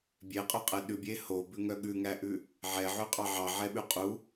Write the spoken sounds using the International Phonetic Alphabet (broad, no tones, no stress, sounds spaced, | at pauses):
bʲ e qʼ ɵ qʼ ɛ ɗ ʉ bʲ e h o b ʉ ŋ œ ɠ ʉ ŋ æ ʔ ʉ | ʕ ɛ ʕ ʉ qʼ ɑ ʕ ɑ ʕ ɛ ɓ ʉ qʼ u